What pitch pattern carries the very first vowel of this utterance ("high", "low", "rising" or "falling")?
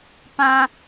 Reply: low